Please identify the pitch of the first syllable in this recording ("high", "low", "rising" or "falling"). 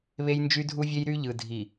high